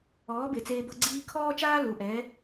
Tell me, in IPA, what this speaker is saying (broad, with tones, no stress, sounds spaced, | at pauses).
ɔː˩˥ b e˩ t͡s eː˧ b ɤ˧ ɡ͡ǀ iː˧ kʰ ɔː˥ t͡ʃ aː˥ l u˩ ʔ ɛ˩˥